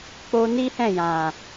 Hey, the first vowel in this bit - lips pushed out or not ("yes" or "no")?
yes